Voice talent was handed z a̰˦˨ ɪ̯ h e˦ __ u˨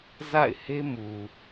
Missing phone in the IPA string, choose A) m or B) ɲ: A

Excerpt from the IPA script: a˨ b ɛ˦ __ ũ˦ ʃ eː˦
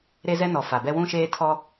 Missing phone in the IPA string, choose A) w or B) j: A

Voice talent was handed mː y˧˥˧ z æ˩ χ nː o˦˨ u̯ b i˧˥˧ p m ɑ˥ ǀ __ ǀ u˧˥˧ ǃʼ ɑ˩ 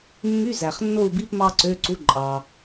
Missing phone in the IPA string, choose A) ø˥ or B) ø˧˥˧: B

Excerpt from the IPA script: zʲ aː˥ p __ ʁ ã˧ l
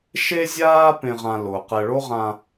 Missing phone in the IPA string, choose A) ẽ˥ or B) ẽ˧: B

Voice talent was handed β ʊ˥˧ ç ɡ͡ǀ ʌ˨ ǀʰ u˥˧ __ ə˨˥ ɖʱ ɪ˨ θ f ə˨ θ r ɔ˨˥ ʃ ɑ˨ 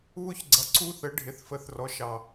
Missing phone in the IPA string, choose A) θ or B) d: A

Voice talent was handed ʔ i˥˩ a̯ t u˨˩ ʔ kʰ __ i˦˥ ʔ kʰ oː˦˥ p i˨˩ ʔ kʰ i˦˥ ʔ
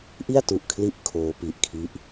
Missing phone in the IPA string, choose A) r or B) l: B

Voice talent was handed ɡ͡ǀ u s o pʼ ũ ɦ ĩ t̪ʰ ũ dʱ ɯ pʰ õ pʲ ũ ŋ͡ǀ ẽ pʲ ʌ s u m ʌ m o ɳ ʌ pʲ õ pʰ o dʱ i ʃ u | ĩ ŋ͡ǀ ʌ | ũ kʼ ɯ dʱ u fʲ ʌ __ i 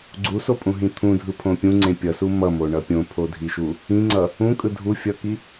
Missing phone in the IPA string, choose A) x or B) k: B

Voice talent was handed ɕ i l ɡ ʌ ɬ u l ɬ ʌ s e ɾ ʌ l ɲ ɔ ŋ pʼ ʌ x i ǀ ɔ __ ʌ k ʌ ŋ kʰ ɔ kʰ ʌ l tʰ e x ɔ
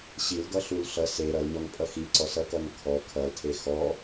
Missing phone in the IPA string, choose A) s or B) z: A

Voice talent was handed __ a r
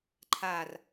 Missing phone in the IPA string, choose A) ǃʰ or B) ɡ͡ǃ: A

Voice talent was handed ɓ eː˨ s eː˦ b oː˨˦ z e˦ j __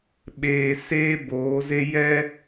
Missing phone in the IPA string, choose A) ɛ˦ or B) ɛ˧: A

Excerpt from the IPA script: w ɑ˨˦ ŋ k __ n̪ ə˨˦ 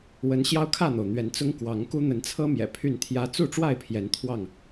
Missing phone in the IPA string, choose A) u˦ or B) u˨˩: A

